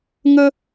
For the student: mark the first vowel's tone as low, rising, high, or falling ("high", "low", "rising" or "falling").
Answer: high